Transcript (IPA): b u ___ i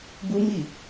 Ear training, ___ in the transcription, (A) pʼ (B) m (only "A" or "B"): B